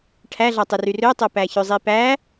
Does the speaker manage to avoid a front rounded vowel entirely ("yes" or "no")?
no